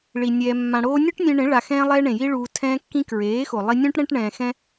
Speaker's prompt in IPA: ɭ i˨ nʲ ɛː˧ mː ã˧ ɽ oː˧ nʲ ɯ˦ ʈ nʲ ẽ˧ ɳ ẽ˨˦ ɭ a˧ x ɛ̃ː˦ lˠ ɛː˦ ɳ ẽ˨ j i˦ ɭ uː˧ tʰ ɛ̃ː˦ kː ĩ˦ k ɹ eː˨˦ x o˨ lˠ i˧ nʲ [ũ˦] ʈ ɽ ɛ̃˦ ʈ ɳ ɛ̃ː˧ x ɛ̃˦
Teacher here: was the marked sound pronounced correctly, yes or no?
yes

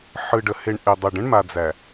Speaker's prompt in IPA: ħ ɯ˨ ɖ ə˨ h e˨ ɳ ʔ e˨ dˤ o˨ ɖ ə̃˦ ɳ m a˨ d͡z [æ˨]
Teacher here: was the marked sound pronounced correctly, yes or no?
yes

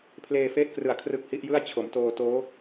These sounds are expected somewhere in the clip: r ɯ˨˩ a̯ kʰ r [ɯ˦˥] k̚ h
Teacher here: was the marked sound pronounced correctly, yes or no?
yes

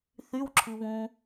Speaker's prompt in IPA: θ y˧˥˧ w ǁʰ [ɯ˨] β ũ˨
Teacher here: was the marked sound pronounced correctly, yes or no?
yes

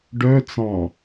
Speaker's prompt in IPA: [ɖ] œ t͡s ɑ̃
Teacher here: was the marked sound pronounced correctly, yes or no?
yes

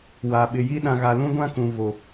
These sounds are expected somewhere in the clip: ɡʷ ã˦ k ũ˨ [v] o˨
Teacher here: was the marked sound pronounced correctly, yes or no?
yes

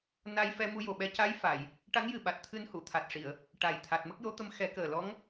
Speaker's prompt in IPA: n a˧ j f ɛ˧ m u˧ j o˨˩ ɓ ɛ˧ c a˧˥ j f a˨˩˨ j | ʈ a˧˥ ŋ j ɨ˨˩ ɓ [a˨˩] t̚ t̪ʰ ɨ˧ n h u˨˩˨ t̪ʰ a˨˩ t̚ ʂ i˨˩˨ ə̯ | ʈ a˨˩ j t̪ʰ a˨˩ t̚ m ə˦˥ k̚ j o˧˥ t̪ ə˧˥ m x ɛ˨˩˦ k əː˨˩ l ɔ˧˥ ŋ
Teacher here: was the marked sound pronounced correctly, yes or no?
yes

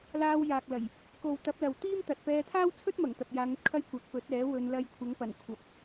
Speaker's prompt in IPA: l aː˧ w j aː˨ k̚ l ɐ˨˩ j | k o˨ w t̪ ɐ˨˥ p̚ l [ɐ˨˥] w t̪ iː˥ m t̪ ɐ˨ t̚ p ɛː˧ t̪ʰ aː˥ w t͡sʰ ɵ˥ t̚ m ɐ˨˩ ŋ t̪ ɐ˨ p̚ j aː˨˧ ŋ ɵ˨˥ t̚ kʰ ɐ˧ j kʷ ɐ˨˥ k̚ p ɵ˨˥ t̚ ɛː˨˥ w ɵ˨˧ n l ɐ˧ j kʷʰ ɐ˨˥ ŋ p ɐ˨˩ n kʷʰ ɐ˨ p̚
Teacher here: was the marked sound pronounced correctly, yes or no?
no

